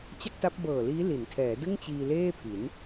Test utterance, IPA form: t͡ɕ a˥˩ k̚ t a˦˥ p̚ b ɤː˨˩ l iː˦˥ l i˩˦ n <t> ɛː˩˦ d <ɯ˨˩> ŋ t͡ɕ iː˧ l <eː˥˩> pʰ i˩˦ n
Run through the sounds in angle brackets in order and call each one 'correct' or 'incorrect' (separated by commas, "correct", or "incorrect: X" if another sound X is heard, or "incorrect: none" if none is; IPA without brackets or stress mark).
incorrect: tʰ, incorrect: ɯ˥˩, correct